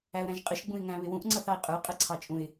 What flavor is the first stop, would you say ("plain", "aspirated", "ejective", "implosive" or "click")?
ejective